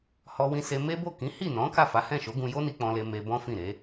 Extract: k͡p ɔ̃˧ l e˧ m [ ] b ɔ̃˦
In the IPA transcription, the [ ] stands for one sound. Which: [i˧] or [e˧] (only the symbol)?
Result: e˧